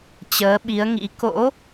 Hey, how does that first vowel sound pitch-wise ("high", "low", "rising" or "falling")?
rising